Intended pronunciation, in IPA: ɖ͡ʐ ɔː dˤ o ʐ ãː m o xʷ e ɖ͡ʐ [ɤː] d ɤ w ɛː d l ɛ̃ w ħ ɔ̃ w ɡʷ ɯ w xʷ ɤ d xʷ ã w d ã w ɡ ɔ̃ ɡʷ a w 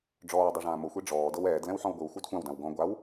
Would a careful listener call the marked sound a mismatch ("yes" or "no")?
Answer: yes